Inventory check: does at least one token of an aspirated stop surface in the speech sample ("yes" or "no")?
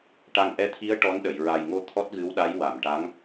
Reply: yes